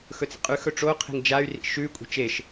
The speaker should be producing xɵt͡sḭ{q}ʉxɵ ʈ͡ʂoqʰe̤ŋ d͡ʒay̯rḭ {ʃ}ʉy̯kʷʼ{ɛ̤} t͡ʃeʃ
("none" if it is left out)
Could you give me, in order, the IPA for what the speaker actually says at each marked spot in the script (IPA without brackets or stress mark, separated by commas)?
qʼ, ʃ, e̤